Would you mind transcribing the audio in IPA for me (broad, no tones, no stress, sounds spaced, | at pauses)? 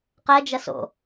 q ɛ d͡ʒ ɐ s o̰